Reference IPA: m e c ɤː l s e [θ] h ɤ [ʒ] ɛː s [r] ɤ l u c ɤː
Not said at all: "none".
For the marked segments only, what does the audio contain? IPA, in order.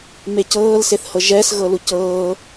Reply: θ, ʒ, ɣ

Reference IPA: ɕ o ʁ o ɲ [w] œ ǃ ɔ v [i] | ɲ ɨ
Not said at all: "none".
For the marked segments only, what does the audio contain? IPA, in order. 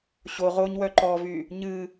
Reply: w, y

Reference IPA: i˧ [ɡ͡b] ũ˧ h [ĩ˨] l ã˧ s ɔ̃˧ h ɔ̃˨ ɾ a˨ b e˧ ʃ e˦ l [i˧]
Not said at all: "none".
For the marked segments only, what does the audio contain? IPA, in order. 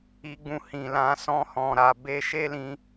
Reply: ɡ͡b, ĩ˨, ĩ˧

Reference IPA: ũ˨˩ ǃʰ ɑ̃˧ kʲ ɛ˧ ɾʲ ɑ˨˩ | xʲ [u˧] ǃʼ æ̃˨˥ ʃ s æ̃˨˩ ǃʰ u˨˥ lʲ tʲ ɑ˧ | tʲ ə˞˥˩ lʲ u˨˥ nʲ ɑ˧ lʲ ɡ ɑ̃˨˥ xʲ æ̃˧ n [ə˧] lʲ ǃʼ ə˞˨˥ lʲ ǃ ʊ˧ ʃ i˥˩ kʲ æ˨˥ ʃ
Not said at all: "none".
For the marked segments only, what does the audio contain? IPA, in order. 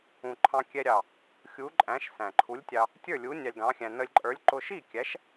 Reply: u˨˥, ə˧

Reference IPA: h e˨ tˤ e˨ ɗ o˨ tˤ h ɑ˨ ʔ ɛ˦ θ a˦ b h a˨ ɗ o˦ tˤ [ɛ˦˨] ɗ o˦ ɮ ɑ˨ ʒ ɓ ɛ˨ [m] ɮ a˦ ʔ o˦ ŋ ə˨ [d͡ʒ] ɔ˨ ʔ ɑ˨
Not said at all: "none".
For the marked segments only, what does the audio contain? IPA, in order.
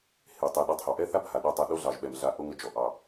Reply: ɛ˦˨, m, d͡ʒ

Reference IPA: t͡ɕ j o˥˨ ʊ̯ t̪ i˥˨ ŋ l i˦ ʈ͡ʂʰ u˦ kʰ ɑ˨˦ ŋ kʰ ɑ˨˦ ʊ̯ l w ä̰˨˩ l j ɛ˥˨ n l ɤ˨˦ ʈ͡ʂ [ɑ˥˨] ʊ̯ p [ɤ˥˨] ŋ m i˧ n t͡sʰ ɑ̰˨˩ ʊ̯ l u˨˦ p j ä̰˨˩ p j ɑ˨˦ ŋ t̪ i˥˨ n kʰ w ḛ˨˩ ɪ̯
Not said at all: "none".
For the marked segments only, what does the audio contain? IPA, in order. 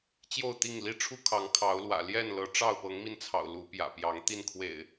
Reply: ɑ˥˨, ɤ˨˦

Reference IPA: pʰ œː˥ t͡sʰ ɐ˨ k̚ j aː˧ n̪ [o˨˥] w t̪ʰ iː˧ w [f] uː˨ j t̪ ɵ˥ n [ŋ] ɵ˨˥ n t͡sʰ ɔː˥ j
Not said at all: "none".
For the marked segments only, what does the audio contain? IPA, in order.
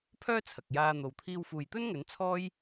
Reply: o˨, f, ŋ

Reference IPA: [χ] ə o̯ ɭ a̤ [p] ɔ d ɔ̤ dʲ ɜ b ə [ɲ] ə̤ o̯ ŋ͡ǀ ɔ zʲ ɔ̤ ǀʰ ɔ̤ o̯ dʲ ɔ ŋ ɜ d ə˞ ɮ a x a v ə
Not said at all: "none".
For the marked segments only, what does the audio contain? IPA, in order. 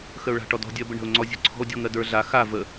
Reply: x, ʈ, ɳ

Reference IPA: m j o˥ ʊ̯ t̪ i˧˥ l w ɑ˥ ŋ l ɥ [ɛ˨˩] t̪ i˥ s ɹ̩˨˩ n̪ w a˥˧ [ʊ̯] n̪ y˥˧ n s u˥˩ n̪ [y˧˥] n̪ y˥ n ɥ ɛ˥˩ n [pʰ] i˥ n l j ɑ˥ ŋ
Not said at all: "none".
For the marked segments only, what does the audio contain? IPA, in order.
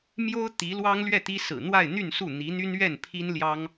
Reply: ɛ˥˩, ɪ̯, i˧˥, pʰ

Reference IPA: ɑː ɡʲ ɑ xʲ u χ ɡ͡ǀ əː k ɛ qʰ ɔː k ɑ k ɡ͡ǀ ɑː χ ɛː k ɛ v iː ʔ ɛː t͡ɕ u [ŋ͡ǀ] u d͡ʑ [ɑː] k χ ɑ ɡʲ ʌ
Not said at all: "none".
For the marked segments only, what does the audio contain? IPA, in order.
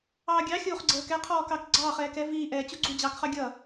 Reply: ɡ͡ǀ, ɑː

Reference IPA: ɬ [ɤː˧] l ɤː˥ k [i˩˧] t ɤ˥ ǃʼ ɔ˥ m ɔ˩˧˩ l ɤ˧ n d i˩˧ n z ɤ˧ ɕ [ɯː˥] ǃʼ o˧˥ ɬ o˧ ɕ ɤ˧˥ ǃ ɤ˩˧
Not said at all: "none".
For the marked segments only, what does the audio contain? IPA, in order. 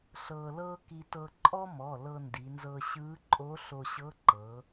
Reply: ɤː˧, i˥, ɯː˧˥

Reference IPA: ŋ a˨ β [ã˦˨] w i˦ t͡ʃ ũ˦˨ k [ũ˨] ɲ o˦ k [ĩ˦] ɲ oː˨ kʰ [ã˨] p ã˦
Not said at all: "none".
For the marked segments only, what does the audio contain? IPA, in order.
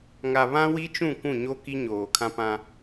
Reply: ã˦, ũ˦˨, i˦, ã˦

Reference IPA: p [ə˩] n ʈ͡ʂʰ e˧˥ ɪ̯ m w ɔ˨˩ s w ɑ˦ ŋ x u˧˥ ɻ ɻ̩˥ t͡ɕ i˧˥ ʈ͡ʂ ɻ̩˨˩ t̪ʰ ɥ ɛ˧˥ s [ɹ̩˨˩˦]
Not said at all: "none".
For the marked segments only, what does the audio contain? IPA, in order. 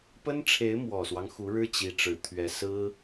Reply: ə˥, ɹ̩˥

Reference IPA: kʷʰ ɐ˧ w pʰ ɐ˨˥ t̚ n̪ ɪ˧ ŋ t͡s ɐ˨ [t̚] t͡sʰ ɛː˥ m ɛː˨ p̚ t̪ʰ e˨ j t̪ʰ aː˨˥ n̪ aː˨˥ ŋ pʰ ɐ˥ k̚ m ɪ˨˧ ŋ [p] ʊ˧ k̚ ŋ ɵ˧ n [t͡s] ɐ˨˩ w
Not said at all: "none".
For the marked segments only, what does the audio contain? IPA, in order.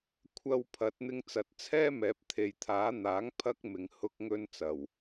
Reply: t̚, h, t͡s

